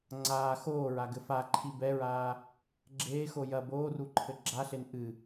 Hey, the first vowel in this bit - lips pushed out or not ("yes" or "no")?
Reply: no